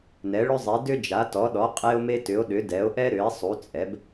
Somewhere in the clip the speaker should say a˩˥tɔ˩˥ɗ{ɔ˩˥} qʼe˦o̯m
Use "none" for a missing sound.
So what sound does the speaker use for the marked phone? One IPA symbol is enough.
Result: ɔ˩˥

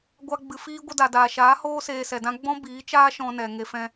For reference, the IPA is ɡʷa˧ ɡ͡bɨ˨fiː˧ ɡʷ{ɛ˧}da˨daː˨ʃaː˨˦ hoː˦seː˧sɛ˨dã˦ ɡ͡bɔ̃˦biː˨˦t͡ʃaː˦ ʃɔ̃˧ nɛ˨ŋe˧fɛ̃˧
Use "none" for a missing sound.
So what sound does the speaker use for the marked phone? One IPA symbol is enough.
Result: ə˧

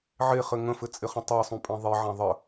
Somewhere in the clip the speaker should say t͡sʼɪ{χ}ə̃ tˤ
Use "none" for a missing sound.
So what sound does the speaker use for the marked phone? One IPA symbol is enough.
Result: χ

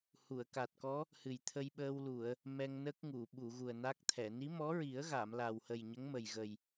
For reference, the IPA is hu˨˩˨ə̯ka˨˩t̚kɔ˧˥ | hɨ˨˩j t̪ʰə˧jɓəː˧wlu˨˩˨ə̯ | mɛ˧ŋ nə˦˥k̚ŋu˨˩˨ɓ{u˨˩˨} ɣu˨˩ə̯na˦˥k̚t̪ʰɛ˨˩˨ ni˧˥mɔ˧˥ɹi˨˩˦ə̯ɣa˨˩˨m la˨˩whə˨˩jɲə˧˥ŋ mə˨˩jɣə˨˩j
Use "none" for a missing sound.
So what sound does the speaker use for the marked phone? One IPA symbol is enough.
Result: u˨˩˨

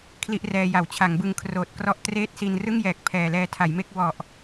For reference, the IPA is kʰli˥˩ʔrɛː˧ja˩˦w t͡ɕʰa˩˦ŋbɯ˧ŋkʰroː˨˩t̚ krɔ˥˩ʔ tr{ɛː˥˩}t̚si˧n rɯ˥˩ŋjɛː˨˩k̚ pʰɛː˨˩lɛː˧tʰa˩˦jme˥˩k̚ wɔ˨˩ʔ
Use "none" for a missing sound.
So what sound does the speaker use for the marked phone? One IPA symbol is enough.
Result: eː˥˩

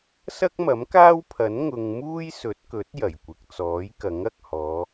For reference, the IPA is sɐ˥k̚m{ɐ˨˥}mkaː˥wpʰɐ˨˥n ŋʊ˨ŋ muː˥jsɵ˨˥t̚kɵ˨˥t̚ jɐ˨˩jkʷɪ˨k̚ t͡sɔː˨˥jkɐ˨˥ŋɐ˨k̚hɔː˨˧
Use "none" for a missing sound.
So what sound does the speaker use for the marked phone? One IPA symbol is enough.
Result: ɐ˨˥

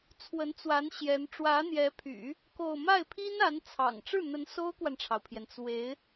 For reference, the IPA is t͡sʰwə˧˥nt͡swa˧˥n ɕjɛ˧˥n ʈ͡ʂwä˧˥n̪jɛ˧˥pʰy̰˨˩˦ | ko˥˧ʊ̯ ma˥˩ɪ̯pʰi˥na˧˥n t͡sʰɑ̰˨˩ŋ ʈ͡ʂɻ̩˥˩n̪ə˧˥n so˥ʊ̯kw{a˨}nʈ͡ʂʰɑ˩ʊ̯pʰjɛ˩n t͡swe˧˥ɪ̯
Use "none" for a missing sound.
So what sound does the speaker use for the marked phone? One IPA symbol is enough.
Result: a˨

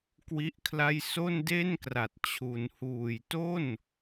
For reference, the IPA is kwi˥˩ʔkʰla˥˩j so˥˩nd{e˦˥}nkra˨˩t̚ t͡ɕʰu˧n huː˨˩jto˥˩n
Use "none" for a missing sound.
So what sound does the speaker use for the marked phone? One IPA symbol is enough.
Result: e˥˩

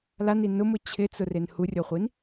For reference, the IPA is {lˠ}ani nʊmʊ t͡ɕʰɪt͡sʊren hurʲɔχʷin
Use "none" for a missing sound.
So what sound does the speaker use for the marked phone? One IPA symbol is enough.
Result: l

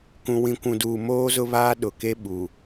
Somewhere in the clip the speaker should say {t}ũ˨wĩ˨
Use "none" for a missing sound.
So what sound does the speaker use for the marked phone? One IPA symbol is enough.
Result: k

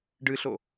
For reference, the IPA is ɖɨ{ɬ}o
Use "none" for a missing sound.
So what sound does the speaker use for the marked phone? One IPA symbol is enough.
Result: ɬ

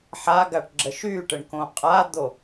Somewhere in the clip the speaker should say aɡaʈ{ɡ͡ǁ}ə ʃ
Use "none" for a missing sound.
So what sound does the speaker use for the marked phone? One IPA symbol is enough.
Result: ɡ͡ǁ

